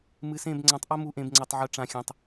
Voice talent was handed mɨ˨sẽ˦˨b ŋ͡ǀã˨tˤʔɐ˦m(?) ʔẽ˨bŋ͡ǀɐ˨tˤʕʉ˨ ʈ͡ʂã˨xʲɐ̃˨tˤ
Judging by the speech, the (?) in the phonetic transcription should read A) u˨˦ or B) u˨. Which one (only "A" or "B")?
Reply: A